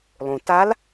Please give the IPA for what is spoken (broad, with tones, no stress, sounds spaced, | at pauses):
lˠ ũ˩ t a˧˥ l